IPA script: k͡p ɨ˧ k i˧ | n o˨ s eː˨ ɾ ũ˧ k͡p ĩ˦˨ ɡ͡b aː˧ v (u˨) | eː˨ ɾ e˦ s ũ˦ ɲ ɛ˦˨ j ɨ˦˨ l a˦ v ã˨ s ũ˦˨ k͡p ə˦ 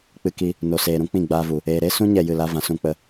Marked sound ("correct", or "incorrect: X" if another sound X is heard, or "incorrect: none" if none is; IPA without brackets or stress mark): correct